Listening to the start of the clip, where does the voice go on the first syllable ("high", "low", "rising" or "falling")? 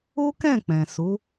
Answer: high